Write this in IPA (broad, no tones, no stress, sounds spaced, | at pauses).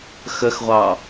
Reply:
x ə x ʁʷ ɑ